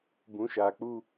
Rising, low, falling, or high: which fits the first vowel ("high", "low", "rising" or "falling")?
rising